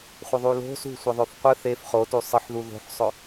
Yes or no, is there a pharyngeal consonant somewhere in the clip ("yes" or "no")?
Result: yes